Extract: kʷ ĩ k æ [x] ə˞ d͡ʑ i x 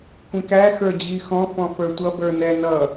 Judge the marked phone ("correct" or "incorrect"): correct